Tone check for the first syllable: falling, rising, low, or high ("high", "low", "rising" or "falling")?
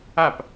falling